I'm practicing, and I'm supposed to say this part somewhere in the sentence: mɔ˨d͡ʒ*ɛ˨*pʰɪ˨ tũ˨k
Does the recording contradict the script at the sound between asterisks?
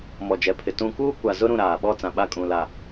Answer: no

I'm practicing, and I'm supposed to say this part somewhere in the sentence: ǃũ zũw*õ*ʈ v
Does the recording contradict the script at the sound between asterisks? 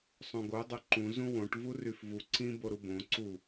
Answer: no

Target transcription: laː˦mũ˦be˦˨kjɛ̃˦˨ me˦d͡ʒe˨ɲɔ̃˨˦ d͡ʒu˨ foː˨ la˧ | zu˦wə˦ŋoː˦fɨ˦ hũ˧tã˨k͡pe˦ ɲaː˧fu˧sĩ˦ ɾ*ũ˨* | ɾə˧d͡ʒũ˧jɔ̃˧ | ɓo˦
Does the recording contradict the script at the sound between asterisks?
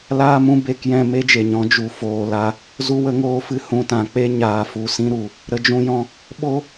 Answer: yes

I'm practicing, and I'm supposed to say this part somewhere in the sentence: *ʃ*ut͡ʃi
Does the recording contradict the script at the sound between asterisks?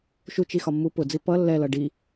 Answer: no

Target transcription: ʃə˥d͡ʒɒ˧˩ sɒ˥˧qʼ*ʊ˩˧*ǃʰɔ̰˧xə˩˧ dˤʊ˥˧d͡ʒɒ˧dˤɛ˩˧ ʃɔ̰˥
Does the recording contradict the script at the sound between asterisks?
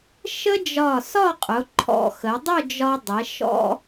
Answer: no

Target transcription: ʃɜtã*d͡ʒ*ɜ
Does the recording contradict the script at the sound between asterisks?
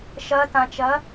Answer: yes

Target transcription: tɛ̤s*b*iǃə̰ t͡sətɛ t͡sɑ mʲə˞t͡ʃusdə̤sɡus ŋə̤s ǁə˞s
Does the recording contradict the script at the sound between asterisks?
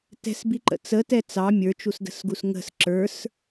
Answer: no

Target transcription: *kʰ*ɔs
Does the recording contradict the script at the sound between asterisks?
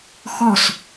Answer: yes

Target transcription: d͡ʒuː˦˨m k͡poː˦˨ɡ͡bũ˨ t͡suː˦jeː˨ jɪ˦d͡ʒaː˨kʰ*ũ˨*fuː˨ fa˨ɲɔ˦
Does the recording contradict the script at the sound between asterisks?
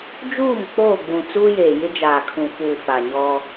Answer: no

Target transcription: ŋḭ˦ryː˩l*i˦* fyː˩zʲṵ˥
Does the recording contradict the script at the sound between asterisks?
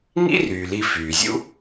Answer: yes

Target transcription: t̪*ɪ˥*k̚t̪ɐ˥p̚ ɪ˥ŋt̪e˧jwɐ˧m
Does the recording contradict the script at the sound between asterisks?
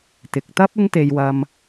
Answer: yes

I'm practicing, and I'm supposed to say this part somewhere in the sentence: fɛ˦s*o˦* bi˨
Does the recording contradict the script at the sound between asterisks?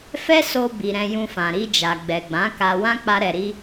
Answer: yes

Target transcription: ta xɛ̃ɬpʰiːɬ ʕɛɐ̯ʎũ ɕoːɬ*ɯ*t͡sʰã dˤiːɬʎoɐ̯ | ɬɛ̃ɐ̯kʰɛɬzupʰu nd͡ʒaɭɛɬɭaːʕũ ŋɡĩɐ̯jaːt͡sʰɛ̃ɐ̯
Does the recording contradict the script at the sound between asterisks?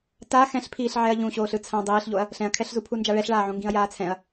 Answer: no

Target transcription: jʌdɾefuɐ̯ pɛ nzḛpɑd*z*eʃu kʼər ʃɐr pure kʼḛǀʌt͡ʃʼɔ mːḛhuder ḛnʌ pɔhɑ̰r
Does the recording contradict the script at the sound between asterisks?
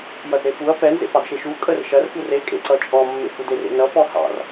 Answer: yes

